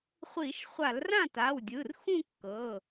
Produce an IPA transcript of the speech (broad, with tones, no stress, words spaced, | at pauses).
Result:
χʷi˧˩˧ʃ χʷa˧˩˧lrã˥˩ta˩˧˩w dʲɯ˩˧˩rxũ˥˧kːɤ˩˧˩